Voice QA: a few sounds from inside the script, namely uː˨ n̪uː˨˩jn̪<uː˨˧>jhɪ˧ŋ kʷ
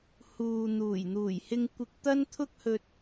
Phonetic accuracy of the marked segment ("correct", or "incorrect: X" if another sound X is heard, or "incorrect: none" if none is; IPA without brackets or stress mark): incorrect: uː˨˩